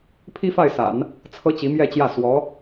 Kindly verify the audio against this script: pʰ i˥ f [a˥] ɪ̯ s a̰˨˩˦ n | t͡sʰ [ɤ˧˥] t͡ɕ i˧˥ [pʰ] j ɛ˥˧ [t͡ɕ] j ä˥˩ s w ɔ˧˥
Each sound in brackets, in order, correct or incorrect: incorrect, incorrect, incorrect, correct

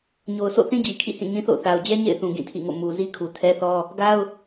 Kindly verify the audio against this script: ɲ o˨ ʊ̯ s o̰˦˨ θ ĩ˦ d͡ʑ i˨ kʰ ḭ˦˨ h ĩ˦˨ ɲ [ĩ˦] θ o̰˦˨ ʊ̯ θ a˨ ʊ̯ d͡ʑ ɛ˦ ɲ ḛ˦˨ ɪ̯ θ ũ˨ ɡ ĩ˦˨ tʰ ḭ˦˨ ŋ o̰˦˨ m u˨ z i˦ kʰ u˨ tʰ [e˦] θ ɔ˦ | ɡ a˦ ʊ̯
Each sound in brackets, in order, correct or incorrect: correct, incorrect

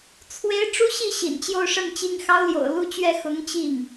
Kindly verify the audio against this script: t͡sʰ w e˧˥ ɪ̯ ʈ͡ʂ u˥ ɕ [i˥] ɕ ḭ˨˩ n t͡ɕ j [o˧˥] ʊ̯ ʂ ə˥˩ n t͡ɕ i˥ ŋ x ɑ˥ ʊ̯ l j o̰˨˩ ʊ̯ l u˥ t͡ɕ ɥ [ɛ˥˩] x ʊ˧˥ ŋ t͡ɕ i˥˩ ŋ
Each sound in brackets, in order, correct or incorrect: incorrect, incorrect, correct

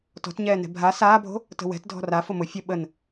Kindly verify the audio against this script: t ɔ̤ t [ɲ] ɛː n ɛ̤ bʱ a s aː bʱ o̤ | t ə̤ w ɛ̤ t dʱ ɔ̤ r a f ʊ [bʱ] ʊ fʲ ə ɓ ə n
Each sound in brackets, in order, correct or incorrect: correct, incorrect

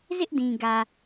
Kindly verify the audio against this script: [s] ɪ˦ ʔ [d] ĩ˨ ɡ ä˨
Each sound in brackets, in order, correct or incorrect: incorrect, correct

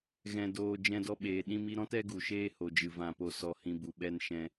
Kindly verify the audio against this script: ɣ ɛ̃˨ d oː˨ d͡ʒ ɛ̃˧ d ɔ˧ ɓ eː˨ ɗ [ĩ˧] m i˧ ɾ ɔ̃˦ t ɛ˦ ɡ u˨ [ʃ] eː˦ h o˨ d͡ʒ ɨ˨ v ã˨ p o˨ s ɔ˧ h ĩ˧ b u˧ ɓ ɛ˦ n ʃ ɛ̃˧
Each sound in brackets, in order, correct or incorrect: correct, correct

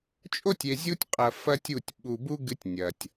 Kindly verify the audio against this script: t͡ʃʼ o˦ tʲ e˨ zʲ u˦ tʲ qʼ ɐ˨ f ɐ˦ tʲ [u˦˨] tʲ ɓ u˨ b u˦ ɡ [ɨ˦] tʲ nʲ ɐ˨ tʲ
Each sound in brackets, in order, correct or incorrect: correct, correct

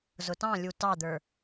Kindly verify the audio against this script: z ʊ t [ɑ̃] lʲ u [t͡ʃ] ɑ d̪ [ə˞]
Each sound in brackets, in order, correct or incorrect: correct, incorrect, correct

